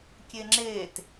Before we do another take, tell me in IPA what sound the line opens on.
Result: kʲ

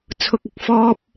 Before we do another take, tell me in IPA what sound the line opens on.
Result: t͡sʰ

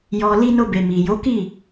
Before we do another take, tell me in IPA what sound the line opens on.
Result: j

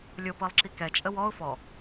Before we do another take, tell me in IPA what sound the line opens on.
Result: lʲ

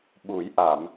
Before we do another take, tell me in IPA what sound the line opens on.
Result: ɓ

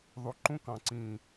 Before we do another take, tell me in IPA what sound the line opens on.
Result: ðˤ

